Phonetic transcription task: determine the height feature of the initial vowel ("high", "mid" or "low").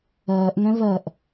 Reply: mid